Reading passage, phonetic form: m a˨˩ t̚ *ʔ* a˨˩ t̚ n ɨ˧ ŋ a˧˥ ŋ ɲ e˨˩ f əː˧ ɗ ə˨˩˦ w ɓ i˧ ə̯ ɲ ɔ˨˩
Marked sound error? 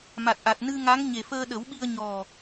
no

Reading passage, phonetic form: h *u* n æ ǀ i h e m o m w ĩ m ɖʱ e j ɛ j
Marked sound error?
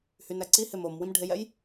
yes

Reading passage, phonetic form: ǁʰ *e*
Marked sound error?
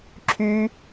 yes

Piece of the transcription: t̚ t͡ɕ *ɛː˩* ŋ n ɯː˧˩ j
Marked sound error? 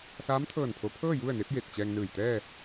yes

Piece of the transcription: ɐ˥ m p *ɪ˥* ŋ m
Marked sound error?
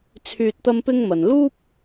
no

